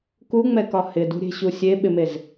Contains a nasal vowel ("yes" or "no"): no